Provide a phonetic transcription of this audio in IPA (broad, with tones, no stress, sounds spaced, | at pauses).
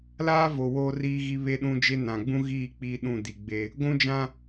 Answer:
l aː˦ v o˨ w oː˦ r iː˦ ɣ i˦ β e˦ ɗ ũ˦ d͡ʒ e˦ n ã˨ ɡ͡b ũ˦ ɣ iː˦˨ k͡p iː˦ ɗ ũ˦˨ d i˨ ɡ͡b e˦ | ɡʷ ũ˦ d͡ʒ ã˦